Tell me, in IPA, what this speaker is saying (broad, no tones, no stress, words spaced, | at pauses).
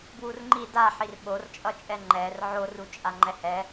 bwurŋ͡ǃi daħir ɓort͡ʃʼʌt͡ʃʼɛ ŋ͡ǃɛr ʕor ut͡ʃʼaŋ͡ǃɛhɛ